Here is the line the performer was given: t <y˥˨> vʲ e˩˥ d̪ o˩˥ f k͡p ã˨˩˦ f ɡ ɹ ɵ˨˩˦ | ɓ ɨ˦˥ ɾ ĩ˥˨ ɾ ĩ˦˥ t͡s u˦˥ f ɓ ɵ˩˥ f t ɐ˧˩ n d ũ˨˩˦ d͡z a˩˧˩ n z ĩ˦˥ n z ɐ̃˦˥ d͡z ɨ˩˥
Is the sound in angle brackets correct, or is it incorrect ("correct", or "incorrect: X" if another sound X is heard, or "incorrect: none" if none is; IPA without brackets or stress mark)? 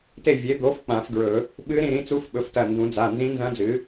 incorrect: e˥˨